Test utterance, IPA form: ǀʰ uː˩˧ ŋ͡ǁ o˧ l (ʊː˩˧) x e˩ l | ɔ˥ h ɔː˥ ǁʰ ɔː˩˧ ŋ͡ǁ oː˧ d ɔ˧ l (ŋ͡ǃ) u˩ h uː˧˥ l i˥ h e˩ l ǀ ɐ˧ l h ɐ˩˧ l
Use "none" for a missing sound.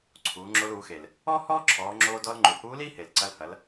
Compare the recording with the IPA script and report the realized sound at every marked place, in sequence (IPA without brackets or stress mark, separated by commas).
uː˩˧, ŋ͡ǃ